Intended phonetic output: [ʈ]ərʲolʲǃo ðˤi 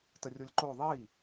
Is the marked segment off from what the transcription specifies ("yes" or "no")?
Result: yes